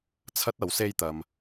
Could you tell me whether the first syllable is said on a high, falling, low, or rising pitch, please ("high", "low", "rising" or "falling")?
high